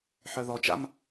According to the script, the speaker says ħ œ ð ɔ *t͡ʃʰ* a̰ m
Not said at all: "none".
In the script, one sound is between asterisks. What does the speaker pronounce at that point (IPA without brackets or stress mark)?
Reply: t͡ʃ